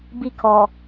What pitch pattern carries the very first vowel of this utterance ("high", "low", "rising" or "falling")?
falling